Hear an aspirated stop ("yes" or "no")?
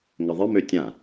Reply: no